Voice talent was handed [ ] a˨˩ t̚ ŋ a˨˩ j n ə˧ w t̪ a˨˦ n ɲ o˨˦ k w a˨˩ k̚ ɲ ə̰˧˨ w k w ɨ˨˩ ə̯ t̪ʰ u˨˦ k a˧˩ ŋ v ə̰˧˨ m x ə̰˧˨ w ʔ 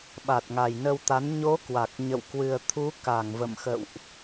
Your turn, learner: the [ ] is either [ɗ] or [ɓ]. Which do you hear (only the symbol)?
ɓ